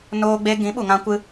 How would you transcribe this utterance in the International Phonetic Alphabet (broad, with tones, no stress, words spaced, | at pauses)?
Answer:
noː˧ ɡ͡be˧ ɡĩ˨˦ɓu˨ŋã˧kʷɨ˧